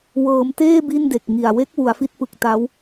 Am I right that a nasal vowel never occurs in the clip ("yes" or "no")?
yes